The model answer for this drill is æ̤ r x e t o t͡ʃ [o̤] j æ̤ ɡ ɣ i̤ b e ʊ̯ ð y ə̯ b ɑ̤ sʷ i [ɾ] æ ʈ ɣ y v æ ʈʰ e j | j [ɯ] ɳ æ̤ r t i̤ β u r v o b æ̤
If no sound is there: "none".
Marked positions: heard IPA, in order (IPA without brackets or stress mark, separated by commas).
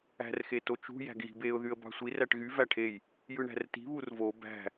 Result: ṳ, r, ɯ